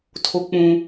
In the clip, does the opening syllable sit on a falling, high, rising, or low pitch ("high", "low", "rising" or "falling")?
high